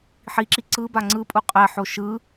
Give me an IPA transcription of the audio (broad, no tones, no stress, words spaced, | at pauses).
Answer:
ħiǁi ǀɯba ŋ͡ǀɯpʼu qʼɛħo ʃɯ